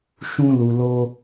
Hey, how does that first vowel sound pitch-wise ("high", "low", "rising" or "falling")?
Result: high